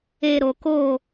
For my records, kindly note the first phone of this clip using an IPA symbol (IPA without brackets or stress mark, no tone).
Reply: eː